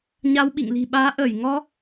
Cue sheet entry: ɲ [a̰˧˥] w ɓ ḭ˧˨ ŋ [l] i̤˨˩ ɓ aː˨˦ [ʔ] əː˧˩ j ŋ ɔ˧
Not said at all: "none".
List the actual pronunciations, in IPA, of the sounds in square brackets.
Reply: a˧, l, ʔ

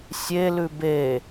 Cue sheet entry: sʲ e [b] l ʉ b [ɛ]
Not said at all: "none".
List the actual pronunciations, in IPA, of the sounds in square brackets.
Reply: none, e

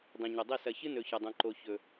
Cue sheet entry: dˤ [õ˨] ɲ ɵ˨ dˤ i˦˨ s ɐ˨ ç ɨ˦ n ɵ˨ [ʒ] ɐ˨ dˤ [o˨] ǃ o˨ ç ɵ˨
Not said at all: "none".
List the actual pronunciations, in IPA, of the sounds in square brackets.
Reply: õ˨, ç, õ˨

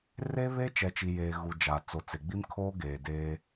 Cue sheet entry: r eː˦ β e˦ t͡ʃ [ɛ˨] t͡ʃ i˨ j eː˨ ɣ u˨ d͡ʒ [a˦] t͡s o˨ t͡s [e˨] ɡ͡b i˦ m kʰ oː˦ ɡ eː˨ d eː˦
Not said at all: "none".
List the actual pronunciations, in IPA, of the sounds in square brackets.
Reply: ɛ˨, a˨, e˨

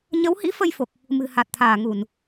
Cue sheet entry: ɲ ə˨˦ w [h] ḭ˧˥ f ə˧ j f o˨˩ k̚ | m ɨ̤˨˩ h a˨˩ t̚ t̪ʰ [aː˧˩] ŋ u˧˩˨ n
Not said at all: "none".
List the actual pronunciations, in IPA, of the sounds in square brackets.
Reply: h, aː˧˩

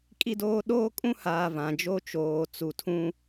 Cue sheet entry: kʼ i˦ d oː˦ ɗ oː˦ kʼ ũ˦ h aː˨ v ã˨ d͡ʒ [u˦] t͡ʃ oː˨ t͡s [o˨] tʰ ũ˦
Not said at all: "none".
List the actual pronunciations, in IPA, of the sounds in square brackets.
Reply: o˦, u˨

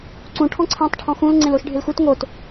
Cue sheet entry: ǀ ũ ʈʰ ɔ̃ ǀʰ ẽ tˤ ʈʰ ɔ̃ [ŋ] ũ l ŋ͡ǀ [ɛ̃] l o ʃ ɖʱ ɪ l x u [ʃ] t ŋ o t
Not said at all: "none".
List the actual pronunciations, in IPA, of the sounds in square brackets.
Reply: x, ẽ, none

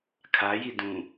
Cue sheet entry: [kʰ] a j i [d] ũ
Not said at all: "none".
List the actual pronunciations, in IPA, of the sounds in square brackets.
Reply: kʰ, d

